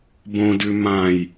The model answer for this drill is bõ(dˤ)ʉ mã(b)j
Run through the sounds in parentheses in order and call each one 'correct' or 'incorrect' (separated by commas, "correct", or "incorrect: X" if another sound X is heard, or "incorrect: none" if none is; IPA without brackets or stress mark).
incorrect: d, incorrect: none